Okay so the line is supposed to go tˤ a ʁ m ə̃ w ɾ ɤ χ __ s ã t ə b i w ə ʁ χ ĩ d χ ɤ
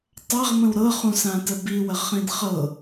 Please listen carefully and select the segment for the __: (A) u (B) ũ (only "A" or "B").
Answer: B